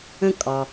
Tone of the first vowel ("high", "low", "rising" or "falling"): high